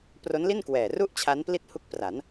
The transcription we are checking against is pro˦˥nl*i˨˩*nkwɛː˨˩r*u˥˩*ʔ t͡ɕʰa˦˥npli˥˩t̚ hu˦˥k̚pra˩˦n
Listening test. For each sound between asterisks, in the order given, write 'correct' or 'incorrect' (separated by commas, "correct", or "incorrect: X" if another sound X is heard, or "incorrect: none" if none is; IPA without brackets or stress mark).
incorrect: i˥˩, correct